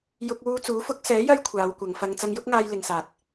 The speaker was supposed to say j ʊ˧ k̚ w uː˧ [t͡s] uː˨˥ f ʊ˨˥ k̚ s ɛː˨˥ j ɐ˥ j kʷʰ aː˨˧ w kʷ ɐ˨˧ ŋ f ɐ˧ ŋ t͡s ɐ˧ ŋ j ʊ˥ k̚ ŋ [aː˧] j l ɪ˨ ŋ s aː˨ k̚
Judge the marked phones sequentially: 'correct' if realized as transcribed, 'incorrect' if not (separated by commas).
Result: correct, correct